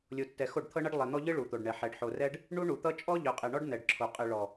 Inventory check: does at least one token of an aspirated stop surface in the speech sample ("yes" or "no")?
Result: yes